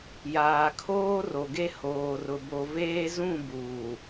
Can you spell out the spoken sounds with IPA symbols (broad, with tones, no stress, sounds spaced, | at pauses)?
j aː˨ kʰ oː˦ r o˨ ɡ e˦ h oː˨ r ʊ˨ b o˨ v eː˦ z ũ˦˨ b uː˨